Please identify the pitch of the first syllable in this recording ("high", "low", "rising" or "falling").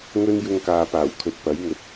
high